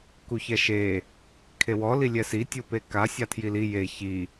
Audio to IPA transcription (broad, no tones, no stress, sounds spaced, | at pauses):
k u ç ɛ ʃ e | kʰ e w ɔ l i lʲ ɛ s i tʲ u p e k a sʲ a tʰ j i l i j e ç i